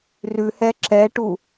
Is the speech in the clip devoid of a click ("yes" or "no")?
no